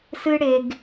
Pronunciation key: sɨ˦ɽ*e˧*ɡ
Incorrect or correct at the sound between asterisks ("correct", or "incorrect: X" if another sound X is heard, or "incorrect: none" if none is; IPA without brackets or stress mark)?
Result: correct